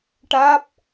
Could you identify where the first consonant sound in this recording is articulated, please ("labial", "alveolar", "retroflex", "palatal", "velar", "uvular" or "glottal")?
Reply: retroflex